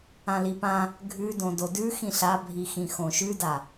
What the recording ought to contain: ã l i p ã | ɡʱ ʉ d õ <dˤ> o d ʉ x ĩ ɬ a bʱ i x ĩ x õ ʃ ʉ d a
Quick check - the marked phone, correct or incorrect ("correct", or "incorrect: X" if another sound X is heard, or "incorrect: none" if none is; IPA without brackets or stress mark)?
incorrect: d